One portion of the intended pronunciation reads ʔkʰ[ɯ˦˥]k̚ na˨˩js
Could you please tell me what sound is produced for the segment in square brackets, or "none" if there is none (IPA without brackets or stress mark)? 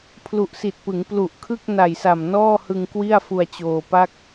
ɯ˥˩